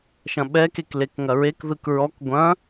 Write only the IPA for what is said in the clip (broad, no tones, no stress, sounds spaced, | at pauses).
ʃ ɐ̃ ɓ ɛ k e k l e k ŋ ɐ ɹ e k ð ɯ k ɹ ɔ k ɡʷ ɐ̃